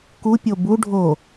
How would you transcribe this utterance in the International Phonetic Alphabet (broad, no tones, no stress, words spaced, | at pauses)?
ku pʲobu ɖʱo